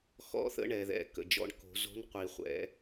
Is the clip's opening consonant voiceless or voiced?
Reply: voiceless